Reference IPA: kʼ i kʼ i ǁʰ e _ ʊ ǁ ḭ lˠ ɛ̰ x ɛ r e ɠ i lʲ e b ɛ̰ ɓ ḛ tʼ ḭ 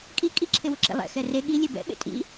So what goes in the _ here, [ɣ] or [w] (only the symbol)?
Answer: w